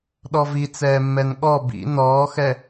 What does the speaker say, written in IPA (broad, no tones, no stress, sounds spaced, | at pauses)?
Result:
ɗ ɔ v i t͡s ɛː mː ɛ n ɠ ɔ b ḭ n ɔː x ɛ